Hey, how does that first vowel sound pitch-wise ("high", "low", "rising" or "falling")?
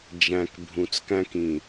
low